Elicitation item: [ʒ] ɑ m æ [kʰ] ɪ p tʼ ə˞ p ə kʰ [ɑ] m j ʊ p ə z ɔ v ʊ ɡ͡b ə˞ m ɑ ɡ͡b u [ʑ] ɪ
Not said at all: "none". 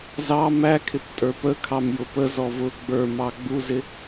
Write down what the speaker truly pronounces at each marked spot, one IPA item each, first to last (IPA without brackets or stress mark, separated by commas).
z, kʰ, ɑ, z